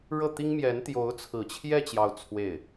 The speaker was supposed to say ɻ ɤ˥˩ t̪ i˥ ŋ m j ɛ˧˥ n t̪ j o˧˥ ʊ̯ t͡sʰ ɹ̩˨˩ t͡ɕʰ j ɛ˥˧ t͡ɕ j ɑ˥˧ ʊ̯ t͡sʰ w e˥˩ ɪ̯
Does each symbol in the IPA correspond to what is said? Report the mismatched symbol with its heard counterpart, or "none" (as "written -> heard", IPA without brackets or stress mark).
none